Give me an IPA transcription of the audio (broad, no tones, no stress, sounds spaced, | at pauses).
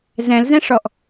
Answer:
z ɛ̃ l z ɛ̃ ʂ ɔ ʔ